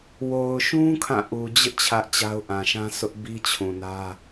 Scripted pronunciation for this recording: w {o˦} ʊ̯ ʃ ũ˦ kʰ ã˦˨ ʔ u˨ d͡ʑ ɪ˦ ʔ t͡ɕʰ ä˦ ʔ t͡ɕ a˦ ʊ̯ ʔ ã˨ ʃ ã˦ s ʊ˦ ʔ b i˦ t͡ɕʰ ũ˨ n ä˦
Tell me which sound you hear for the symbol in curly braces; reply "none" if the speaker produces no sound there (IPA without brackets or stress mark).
o˨